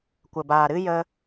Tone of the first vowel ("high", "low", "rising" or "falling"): low